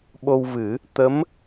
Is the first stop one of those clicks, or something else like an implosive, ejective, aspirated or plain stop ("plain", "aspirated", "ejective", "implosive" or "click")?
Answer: implosive